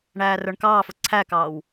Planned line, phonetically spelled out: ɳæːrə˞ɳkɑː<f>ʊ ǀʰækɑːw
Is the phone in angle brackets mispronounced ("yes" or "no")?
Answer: no